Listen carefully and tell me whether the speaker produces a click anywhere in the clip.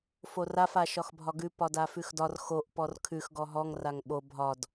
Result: no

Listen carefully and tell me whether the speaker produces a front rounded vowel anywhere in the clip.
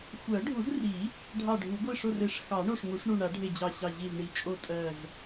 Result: no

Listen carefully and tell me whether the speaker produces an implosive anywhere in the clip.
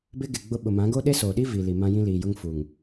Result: yes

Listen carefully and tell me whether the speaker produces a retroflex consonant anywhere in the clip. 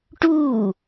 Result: yes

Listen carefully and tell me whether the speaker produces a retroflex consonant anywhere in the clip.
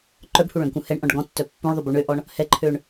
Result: yes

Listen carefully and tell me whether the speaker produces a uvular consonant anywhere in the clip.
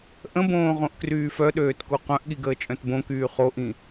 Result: yes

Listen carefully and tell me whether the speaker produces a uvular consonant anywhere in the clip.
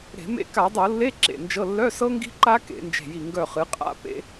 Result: yes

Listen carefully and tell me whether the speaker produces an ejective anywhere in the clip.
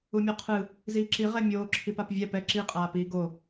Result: yes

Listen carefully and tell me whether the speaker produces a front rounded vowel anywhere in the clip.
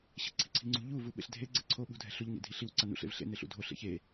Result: no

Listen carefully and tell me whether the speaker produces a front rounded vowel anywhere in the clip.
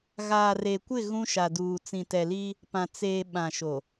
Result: no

